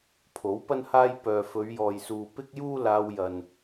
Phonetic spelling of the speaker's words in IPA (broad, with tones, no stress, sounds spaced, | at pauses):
pʰ o˨˥ w p ɐ˥ n h aː˥ j p œː˨ f ɵ˨˧ ɥ j ɔː˨ j s uː˨ p ɪ˥ k̚ j uː˥ l aː˧ w j ɐ˨ n